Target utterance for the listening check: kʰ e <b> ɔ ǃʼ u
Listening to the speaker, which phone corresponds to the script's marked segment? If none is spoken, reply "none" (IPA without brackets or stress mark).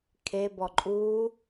b